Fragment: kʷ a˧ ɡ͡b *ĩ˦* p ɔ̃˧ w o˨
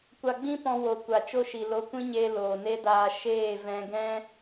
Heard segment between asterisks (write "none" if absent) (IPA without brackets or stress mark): ĩ˦